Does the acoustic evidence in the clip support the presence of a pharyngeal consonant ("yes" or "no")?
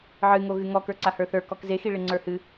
yes